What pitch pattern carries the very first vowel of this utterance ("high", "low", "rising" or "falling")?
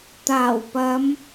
low